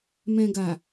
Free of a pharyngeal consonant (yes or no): yes